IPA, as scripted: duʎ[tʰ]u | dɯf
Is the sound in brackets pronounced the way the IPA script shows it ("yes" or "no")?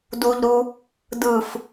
no